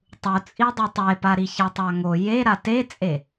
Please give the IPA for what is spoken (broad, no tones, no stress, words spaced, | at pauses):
tˤut͡sʼidˤɯ tˤepaɾi çatˤaŋo je ɾatet͡sʼe